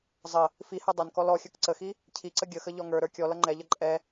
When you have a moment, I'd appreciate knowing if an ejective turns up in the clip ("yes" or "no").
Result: yes